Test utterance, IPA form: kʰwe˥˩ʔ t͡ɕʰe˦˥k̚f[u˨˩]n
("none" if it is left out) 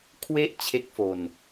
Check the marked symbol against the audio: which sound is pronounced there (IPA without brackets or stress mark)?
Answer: o˨˩